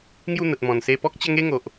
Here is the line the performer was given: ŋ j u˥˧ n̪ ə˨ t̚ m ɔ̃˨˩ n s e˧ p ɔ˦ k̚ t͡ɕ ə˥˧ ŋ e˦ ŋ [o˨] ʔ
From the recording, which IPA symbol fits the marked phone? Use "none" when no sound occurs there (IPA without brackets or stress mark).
o˨